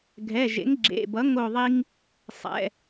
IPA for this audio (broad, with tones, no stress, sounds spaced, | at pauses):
ɡʱ ɛ˩˧˩ ʒ ḛ˩˥ ŋ ɡ͡ǁ ḛ˩˧˩ b ʌ˩˥ ŋ o˧˩ ðˤ i˧ ŋ | sˤ ɛ̰˩˧˩